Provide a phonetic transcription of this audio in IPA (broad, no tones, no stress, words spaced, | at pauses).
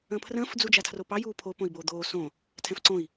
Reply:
ə̃ːpʰrə̃ːf d͡zud͡ʒatʰropɑ juːpʰo põi̯boːd̪oː sõ | tʰɛ̃fǀõi̯